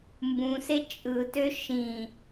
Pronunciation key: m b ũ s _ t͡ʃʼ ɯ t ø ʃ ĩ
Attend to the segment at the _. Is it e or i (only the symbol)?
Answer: e